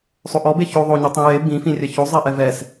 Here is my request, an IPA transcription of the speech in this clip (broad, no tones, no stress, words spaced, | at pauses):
sˤoʔɔ beço ðˤoɲɯtˤĩ je bĩfĩrʲɛ çozˤɛʔɛ vɛs